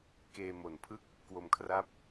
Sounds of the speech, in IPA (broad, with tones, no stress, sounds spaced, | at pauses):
k eː˧ m o˨˩ n pʰ ɯ˥˩ k̚ | k w o˧ m kʰ r a˥˩ p̚